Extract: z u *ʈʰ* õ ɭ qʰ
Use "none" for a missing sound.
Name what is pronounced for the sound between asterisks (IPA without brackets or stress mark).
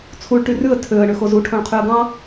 ʈʰ